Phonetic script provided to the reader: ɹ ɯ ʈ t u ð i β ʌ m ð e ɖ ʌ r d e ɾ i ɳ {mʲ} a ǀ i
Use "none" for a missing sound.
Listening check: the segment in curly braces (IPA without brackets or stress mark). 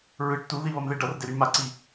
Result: m